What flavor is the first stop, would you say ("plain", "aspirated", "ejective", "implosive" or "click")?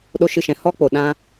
implosive